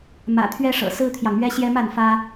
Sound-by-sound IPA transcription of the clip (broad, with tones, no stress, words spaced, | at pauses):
mä̰˨˩t̪ʰɥɛ˦ʂɤ̰˨˩ sɹ̩˦t̪ʰjɑ˨ŋmɥɛ˦ɕjɛ˦ ma˥˨nfä˦